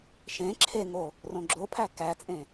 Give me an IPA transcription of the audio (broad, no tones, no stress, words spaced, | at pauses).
ʃẽ ǁʰeŋo | rõɡ͡ǁopʰæ kæt͡sʼẽ